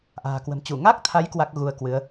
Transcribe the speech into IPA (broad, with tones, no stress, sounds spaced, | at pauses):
ʔ a̤ː˨˩ k w ə̤˨˩ m t͡ɕ u˧˩ ŋ a˦˥ k̚ t̪ʰ a˨˦ j k w a˦˥ k̚ ɣ u˧ ə̯ k w ɨ˨˦ ə̯